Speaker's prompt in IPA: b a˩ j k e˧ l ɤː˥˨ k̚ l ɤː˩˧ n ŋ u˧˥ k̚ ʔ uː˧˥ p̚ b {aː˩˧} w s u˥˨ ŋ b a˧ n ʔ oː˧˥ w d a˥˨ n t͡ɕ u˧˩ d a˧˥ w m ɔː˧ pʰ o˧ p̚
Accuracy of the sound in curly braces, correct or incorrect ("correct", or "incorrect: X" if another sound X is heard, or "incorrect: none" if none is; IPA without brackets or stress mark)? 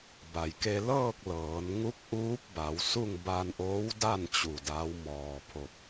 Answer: incorrect: a˩˧